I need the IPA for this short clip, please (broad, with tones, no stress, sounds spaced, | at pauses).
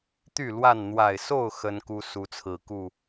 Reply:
t̪ y˥˨ l w a˥˨ n n̪ w a˨˩ ɪ̯ s o˥˨ ʊ̯ x ə˦ n k u˦ s u˨˦ t͡sʰ ɹ̩˨˩ k u˥˨